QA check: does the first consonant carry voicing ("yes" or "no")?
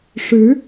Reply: no